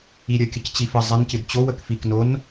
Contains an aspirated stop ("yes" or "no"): no